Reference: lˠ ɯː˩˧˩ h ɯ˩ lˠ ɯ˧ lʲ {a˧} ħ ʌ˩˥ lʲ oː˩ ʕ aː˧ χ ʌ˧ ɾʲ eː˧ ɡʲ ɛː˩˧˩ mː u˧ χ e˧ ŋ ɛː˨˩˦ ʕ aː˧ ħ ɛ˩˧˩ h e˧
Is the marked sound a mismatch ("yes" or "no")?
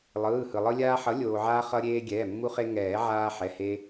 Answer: yes